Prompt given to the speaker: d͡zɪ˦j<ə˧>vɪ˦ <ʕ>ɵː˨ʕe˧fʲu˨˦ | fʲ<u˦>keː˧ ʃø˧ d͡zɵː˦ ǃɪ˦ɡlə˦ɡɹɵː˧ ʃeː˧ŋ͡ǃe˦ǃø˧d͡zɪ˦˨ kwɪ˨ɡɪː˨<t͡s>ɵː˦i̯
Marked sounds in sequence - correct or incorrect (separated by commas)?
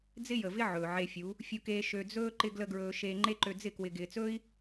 incorrect, correct, incorrect, correct